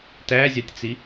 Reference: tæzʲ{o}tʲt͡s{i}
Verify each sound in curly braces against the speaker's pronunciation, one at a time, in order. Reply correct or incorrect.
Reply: incorrect, correct

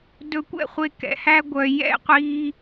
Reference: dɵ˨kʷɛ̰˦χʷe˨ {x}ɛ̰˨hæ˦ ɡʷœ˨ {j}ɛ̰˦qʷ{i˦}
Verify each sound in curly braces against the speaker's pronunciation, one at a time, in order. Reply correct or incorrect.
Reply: incorrect, correct, correct

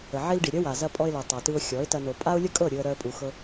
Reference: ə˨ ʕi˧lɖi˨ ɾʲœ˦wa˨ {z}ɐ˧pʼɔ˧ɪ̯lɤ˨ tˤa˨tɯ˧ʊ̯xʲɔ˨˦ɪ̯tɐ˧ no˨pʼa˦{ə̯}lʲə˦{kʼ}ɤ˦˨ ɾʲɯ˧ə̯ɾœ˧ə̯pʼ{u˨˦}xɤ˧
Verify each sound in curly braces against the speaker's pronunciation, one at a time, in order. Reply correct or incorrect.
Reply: correct, incorrect, correct, incorrect

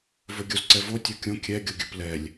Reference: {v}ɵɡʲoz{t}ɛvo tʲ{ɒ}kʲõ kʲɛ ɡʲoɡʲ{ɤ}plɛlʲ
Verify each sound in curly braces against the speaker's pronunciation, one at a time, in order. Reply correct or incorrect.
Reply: correct, incorrect, correct, incorrect

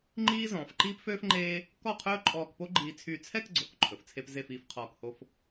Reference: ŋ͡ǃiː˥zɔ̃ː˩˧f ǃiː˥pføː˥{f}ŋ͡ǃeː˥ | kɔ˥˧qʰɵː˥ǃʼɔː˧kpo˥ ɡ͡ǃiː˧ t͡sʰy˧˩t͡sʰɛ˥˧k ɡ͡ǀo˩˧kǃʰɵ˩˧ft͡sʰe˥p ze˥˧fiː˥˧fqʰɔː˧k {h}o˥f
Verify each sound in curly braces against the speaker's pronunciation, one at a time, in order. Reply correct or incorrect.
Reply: correct, correct

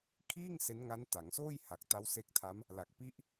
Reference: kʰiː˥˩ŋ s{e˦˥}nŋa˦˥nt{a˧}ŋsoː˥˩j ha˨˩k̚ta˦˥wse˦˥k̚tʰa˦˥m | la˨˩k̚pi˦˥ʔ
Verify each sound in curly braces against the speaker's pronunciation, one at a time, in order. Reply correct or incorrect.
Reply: correct, incorrect

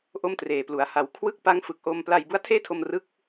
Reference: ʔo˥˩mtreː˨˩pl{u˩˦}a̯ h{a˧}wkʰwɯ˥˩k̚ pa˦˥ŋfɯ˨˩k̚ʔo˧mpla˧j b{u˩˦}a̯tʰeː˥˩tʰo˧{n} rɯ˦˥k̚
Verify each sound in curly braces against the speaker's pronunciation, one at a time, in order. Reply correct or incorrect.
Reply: correct, incorrect, incorrect, incorrect

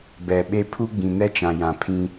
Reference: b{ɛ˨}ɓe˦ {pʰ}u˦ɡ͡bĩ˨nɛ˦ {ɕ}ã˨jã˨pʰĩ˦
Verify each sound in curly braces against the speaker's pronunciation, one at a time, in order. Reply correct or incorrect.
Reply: correct, correct, incorrect

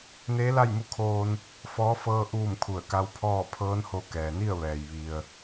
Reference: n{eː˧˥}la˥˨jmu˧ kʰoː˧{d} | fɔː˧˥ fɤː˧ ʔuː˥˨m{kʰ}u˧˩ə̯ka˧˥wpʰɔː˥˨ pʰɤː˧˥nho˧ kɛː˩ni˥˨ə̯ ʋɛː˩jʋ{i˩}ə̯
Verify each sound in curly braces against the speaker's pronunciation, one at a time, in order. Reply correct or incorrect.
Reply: correct, incorrect, correct, correct

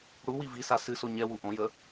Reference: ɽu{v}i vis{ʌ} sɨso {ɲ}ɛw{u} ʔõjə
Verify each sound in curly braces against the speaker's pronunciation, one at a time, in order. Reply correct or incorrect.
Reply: incorrect, incorrect, correct, correct

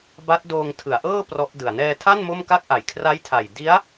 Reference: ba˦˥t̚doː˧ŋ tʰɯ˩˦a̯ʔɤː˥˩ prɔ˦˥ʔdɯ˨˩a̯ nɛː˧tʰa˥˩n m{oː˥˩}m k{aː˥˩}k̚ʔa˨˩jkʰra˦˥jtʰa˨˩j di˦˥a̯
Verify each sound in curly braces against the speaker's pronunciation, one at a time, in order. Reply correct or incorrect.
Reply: incorrect, incorrect

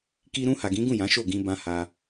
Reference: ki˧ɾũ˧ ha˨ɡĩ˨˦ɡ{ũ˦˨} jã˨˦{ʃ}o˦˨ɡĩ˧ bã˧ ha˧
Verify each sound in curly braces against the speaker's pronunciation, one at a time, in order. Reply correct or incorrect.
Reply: correct, correct

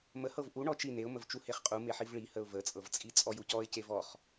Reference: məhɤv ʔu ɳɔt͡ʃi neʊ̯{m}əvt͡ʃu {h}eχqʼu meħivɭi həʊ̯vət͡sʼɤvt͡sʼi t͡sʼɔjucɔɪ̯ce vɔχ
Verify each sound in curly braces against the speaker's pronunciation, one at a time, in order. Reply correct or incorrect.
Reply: correct, correct

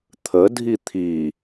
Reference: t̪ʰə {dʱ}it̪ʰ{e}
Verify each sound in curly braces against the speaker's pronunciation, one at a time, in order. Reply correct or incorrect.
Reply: correct, incorrect

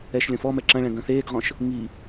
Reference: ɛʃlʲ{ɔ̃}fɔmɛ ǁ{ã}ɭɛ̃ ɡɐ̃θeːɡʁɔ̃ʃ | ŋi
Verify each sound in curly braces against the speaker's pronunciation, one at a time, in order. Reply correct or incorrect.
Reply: correct, incorrect

